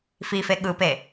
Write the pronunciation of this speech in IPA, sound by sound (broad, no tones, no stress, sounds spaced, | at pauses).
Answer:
f i f e ɠ ɯ p e